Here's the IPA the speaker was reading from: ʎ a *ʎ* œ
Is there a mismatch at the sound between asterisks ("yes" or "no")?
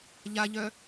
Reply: no